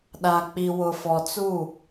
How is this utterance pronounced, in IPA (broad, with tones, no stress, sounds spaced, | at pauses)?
ɗ a˨ k͡p i˨ w ʊ˨ f ɔ˨ t͡s u˦˨